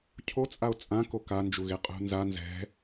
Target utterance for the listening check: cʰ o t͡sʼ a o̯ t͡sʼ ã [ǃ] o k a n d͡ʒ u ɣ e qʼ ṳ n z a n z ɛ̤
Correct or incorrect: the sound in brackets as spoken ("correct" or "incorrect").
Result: incorrect